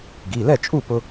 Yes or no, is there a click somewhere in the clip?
no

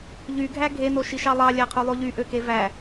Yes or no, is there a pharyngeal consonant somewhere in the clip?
no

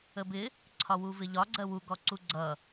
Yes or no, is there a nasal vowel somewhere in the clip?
no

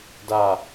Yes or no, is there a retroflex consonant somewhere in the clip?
no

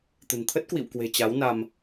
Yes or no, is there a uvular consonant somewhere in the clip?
no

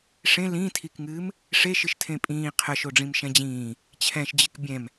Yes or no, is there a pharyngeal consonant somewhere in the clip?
no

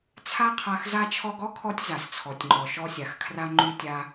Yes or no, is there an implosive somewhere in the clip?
no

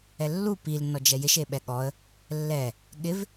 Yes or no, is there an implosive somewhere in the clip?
yes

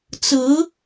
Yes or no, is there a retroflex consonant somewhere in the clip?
no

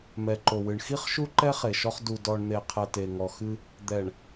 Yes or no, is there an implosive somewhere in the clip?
no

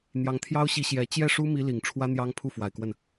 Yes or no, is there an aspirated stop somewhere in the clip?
yes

